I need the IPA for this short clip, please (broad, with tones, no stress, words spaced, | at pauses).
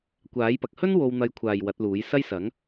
kʷaː˨˥jpɐ˨k̚ hɵ˥n wo˧wn̪ɐ˧jkʷʰaː˨j wɐ˨˥t̚luː˨˥j sɐ˥jsɐ˨˥ŋ